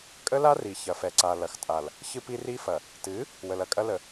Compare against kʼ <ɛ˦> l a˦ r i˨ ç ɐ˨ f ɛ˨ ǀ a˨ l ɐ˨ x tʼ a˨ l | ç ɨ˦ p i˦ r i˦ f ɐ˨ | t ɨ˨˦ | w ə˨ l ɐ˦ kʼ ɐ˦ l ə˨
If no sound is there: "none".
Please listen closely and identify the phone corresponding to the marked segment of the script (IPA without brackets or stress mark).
ə˦